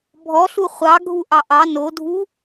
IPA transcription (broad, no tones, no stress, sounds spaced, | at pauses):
bʱ ɔ ɬ u χʷ ɑ ɡʱ u ʔ ɑ ʔ ɑ n o dʱ u